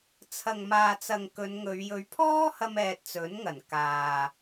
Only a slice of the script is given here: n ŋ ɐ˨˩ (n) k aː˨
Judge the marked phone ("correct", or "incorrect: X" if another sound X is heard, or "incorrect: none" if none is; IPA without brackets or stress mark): correct